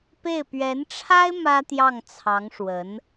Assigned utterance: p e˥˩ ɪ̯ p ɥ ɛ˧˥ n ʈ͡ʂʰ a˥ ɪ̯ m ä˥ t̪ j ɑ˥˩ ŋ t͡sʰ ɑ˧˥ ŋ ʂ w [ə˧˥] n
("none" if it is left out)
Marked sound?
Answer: ə˧˥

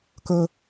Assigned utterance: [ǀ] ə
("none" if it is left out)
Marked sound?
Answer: k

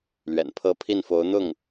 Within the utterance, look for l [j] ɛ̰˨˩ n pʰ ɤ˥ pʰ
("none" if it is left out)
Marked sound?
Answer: ɥ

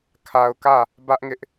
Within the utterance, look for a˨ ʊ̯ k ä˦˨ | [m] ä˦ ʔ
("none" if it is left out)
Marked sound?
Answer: b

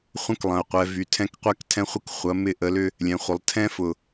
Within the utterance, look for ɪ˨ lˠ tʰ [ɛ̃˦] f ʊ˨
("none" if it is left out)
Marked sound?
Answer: ɛ̃˦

